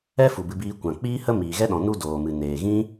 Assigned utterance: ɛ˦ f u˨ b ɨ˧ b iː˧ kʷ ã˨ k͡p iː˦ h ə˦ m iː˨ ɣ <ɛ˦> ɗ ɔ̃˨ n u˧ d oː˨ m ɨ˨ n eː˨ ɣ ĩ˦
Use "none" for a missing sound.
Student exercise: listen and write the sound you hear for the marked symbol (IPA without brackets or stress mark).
ɛ˦